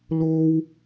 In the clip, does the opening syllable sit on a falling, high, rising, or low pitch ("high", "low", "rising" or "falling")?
high